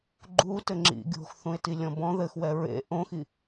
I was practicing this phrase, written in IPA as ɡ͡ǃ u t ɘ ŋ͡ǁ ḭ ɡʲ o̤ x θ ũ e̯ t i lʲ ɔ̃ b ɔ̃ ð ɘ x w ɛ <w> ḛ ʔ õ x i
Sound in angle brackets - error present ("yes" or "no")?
yes